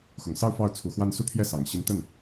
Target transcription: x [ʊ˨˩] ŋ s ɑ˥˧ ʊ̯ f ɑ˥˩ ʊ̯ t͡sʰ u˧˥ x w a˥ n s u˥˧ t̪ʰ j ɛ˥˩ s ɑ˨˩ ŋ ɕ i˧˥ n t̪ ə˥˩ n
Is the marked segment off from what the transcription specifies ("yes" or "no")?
no